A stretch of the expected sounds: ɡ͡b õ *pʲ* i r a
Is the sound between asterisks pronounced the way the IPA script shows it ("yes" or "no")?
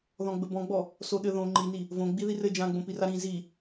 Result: no